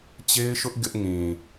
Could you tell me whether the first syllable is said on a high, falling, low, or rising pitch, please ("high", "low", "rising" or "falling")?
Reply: high